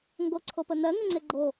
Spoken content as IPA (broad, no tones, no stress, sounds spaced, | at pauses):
ŋ ɡ o ǀʰ o p ə n̪ ɜ ŋ ɜ ŋ͡ǀ e ɡ͡ǃ o